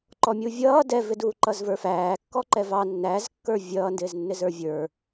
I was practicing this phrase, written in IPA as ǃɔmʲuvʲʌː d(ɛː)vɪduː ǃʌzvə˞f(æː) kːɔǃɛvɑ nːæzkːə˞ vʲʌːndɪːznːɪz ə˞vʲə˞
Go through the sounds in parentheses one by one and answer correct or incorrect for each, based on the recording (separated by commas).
incorrect, correct